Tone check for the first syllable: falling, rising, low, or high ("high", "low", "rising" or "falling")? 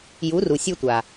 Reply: rising